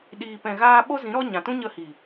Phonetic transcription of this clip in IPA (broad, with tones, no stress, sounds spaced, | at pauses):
ɗ iː˨ p ɛ̃˨ ɣ aː˧ ɓ o˦ z ĩ˨˦ ɾ ɔ˦ ɲ ã˨ t ũ˦ ɲ ə˧ h i˨